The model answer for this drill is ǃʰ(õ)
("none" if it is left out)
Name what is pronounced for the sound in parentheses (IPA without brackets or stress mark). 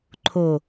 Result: o